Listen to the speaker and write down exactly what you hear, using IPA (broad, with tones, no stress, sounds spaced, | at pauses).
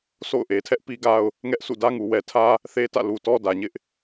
s o̰˦˨ ʊ̯ ʔ e˨ tʰ ɛ˦ ʔ p i˦ ɡ a˦ ʊ̯ | ŋ ɛ˦ ʔ sʰ ṵ˦˨ d ä˦ ŋ u˨ w ɛ˨ tʰ ä˦ | θ e˦ t ä̰˦˨ l u˨ t ɔ˦ d ä˨ ɲ ɪ˦ ʔ